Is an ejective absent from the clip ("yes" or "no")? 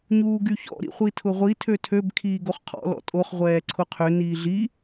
no